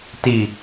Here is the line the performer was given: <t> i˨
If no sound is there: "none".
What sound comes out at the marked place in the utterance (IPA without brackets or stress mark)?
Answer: t